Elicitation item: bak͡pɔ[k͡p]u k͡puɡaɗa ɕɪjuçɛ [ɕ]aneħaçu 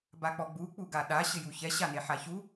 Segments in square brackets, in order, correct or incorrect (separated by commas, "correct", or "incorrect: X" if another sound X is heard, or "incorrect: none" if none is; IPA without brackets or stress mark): incorrect: ɡ͡b, correct